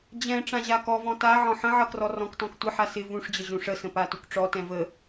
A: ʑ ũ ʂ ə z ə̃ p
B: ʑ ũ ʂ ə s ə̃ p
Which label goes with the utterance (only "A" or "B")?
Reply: B